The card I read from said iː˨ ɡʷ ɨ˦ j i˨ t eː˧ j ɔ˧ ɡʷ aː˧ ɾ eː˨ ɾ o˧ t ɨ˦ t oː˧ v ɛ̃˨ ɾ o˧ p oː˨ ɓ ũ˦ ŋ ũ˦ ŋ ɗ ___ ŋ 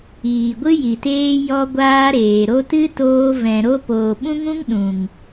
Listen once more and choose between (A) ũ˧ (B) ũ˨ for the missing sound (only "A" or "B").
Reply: B